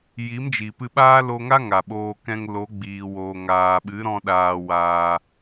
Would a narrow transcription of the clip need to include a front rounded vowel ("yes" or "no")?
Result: no